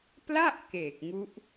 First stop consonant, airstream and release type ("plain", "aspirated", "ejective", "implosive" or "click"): plain